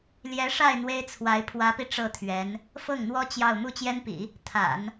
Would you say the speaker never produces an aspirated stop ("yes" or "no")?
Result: no